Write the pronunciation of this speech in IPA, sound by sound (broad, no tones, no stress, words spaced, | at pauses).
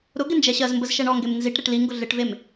ɾʊ ɡɪnd͡ʒɛɕɜzmbəz ʃɛɳɔŋɡem nziʈ ɾeʈliŋɡʊ ɮɪʈvem